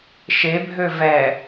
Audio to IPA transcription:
ʃ e bʱ ø v ɛ

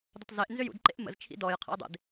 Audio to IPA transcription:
d ə tˤ z e ʔ n z ʏ j ṵ d ǃ ḛ ʔ m ə̰ z t͡ʃʰ ḭ d ɔ j qʰ ə̰ j dˤ ḛ d

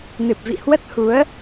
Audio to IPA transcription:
n ɨ˨˩ p̚ v ḭ˧˨ h w ə˦˥ t̚ h u˨˦ ə̯

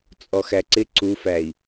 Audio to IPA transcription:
t͡sʼ ɔ x æ ǀ ɪ ǀ u f æ i̯

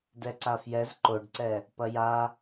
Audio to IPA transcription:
d ɛ ǀ a f j ɛ z ǃ o ɖ ǀ ɛ | p ɐ j a

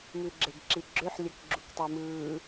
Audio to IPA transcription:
m ʉ ɡ͡ǁ e ɡ ǁ i ɡ͡ǁ ø ħ lʲ ɜ k ɡ͡ǁ u k tˤ i m ɯː

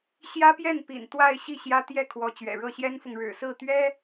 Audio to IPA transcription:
ɕ j ä˥ p j ɛ˥˩ n p ḭ˨˩ n t̪ w a˥˧ ɪ̯ ɕ i˥˩ ɕ j ä˥ t̪ j ɛ˥˩ kʰ w ɔ˧˥ t͡ɕ ɥ ɛ̰˨˩ ɻ ɤ˥˩ ɕ j ɛ˥ n f ʊ˨ ŋ ɻ ɻ̩˨˩ s ɹ̩˥˩ t̪ ɥ ɛ˥

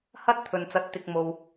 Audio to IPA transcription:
h ɐ˥ t̚ t̪ʰ ɵ˨ n t͡s ɐ˨˥ t̚ t̪ ɪ˨ k̚ m o˨ w

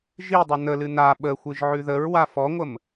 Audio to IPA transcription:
ʒ i dˤ ə n ə l ɨ n a ɓ ə xʷ ɨ ʒ ʕ ʉ ð ə ɹ w a f ɔ ŋʷ ə m

